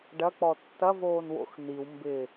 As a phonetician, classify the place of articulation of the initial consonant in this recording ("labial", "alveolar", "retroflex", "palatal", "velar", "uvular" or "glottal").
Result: retroflex